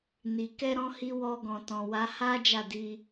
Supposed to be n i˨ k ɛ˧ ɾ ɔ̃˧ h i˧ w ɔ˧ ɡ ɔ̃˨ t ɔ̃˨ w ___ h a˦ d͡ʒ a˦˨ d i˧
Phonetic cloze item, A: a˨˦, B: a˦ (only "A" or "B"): A